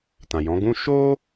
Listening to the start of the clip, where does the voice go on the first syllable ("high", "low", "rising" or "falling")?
low